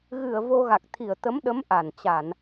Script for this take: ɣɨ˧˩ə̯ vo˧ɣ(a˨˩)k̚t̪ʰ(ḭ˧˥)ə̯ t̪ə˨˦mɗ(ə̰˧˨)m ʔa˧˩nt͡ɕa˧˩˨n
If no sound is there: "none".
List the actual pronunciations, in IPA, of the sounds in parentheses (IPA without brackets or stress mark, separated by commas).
a˨˩, i˧˩, ə˨˦